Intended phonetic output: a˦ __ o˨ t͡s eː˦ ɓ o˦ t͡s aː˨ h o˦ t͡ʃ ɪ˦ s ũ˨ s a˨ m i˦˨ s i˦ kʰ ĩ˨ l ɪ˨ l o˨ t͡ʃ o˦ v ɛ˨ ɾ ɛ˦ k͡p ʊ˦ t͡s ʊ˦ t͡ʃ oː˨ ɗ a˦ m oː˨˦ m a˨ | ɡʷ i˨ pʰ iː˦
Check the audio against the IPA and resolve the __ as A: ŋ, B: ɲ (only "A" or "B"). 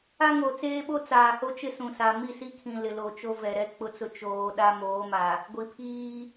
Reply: A